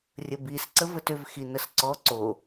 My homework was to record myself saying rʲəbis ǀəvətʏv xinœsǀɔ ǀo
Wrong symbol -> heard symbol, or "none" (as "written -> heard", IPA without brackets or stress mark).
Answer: œ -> ə